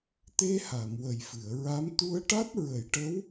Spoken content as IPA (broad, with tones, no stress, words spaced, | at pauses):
t̪e˧ha˨˩˨m wə˨˩jfɨ˨˩˨ə̯ɹa˧˥m t̪u˧ə̯ʈa˦˥t̚ ɹə˨˩˦jʈə˧˥w